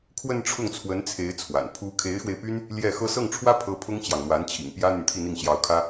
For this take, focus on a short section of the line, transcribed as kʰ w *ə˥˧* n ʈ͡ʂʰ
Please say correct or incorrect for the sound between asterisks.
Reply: correct